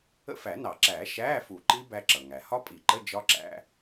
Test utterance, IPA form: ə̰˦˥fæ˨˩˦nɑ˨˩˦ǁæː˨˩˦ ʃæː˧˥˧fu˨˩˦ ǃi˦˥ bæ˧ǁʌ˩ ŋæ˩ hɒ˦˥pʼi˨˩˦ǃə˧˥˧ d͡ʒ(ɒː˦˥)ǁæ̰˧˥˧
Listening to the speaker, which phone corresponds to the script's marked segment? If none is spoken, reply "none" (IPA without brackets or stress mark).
ɒ˦˥